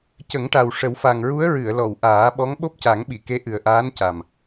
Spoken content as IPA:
cə˨˩˦ŋʈa˨˩w ʂə˨˩˦wfa˨˩ŋɹu˧˥ə̯ ɹɨ˨˩˨ə̯lɔ˨˩˨w ʔaː˨˩˦ɓɔ˧˥ŋ ɓo˦˥p̚ca˨˩˦ŋɓi˨˩˨ke˧˥ ʔɨ˨˩ə̯ʔaː˧˥nca˨˩m

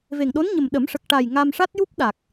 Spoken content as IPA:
ve˨˩ŋɗo˧˥nɲə˨˩m ɗə˨˩˦mʂə˨˩k̚ʈa˨˩j ŋa˧mʂa˦˥t̚ju˦˥p̚ɗa˨˩k̚

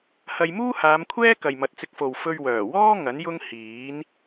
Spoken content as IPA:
hɐ˧j muː˥haː˨˧mkʷʰɛː˥ kɐ˨jmɐ˨t̚t͡sɪ˧k̚fo˨w fɵ˧ɥwœː˨˩wɔː˥ ŋɐ˨˥njʊ˥ŋ hiː˨˥n

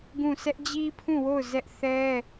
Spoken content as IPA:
ɡũ˦˨ sʰɛ˦ʔd͡ʑi˦pʰũ˦˨wo˦˨ʊ̯ zɛ˦ʔ θɛ˦

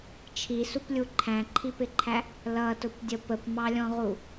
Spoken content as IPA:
t͡ʃʰisuplʲu ǃʰæ̃ǃʰipɪǃʰæ | lʌtʊpdʲə pəpmɑlʲɔ̃ʁu

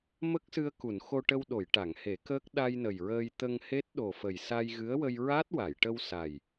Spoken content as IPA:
mə˦˥k̚sɨ˧ə̯ku˨˩˨n xo˧ʈə˧wɗo˨˩˨j ʈa˨˩˨ŋhe˨˩˦kəː˦˥k̚ ɗa˧jnə˨˩jɹəː˧j t̪ə˧ŋhe˦˥t̚ ɗo˨˩fə˨˩j sa˧jɣɨ˧˥ə̯wə˧j ɹa˦˥t̚ wa˨˩˨jʈə˧wsa˨˩j

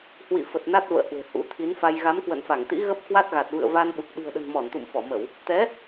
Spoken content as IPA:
hwḭ˧˨fə˨˩t̚ na˦˥t̚və̰ː˧˨ hwe̤˨˩hṵ˧˥t̪ʰi˨˦nfa˧j ɣa˨˦mkwə̰˧˨nfa˧˩ŋt̪ḭ˧˥ ɣə˦˥p̚kwa˦˥t̚ɣa˨˩t̚ vɨ̰˧˨ə̯va˧nɓu˨˩k̚ ɗi̤˨˩ə̯ɗə̤˨˩n mɔ˧˩nt̪ṵ˧˨mfɔ˧˩mə˧˩˨w | t̪ɛ˨˦

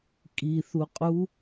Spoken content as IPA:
kʼiθuqʼu

